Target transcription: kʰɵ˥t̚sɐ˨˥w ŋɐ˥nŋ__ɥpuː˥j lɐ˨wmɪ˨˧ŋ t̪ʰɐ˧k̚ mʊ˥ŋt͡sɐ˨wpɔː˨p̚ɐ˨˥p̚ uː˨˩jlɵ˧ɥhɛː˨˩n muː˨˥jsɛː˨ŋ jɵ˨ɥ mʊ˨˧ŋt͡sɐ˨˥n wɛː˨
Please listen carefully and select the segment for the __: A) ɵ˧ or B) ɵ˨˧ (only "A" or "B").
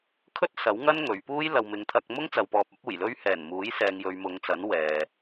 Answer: B